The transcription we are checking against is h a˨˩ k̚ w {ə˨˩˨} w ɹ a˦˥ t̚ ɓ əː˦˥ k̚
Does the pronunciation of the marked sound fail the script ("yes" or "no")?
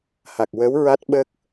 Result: yes